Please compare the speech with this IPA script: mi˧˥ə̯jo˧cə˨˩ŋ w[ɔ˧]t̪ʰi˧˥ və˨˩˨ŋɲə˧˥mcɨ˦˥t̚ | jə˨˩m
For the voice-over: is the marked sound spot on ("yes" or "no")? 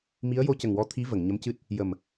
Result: yes